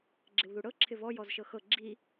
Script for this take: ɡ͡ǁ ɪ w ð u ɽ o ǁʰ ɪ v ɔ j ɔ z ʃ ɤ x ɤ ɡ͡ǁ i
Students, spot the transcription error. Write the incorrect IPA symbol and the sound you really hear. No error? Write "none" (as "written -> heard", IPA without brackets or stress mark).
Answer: o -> ɤ